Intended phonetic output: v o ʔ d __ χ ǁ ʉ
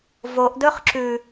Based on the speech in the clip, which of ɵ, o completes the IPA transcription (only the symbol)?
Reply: ɵ